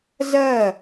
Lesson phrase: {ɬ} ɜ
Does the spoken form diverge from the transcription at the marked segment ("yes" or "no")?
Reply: yes